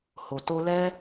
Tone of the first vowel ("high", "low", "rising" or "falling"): low